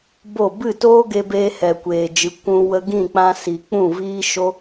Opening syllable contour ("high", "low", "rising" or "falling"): falling